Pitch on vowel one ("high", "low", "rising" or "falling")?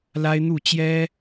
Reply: high